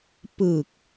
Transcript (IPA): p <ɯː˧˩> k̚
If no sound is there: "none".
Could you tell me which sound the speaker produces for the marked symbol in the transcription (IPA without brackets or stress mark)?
ɯː˧˩